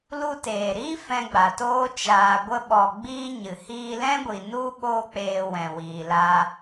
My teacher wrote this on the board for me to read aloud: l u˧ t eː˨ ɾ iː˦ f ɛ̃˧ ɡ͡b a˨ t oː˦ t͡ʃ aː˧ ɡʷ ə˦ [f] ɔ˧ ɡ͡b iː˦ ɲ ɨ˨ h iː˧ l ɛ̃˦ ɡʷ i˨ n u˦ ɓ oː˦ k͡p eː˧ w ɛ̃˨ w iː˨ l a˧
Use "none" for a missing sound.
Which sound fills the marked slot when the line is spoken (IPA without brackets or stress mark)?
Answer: ɓ